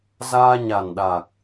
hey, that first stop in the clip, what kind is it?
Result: implosive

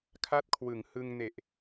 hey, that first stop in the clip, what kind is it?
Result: aspirated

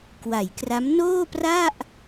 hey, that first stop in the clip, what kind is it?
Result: plain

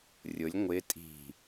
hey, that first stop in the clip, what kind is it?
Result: ejective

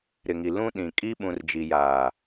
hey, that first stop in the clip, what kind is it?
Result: implosive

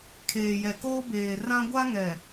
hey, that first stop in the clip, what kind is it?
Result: aspirated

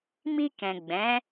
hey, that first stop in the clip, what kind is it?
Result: plain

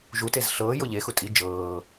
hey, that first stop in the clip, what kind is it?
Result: plain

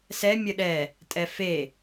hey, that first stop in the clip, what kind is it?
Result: implosive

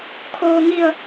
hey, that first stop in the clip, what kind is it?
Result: aspirated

